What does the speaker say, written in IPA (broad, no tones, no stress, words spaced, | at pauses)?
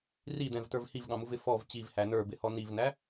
rid̪ɛ̃vtə˞v hivɠɑ̃muvɪ fɔv t͡ɕivhæ nə˞bɪhɔ nivnæ